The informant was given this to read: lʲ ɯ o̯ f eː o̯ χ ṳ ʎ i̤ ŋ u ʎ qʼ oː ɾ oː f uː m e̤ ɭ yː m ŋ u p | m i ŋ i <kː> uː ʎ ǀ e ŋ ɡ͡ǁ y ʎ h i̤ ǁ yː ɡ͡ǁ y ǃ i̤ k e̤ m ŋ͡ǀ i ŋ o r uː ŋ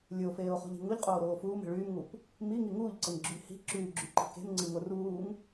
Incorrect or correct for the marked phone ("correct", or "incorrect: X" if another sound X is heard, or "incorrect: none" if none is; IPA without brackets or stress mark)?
incorrect: ŋ